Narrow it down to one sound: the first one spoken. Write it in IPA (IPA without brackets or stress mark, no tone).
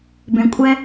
b